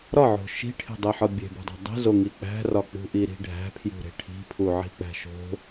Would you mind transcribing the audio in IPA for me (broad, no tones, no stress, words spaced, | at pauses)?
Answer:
ɾɒʕo̤ ʃi̤ʈʰe̤dˤeħɒ bʲe̤bo̤dˤæ̤ dˤe̤zoŋi k͡pæ̤rɒ k͡pṳʔiɾi̤ ɖʱæ̤pʰjṳɾe̤ ʈʰi̤pʰuʕi̤k͡pæ̤ ʃo̤